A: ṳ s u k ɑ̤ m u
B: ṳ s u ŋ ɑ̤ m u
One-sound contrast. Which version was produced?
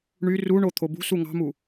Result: B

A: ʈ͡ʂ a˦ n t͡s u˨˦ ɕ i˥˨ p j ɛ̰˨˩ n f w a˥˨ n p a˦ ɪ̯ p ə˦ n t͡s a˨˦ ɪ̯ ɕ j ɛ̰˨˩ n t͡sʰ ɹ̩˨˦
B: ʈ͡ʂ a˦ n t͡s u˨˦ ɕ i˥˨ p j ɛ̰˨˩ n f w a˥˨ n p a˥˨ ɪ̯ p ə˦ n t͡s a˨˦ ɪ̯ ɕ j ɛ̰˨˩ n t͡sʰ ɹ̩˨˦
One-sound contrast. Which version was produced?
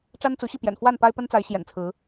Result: A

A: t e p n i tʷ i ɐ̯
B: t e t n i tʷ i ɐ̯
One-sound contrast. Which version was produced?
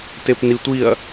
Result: A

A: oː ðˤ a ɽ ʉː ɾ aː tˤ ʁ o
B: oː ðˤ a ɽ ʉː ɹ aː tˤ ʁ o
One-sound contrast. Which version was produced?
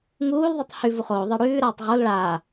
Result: A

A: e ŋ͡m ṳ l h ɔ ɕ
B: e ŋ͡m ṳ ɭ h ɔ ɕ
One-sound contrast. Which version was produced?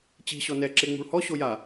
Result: B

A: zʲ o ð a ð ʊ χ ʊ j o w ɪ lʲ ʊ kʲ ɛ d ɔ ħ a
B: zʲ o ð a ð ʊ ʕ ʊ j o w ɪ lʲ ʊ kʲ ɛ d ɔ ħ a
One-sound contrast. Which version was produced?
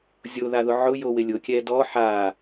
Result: B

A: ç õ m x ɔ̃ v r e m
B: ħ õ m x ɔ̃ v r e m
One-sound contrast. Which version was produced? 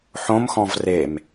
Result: B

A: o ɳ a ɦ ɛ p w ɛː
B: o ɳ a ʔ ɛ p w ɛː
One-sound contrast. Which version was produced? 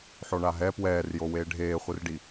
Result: A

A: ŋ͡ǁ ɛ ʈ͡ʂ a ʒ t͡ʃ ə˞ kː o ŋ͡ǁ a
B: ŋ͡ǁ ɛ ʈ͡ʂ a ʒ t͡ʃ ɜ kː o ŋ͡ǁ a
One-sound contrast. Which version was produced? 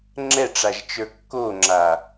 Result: A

